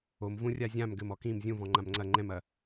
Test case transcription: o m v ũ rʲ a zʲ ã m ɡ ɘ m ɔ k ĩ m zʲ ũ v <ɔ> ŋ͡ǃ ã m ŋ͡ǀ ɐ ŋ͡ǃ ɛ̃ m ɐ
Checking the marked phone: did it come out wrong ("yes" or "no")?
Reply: yes